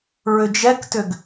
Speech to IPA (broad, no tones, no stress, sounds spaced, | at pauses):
ɹ ʏ d͡ʒ ɛ k t ʏ ɡ